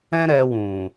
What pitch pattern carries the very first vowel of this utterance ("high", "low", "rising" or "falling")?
high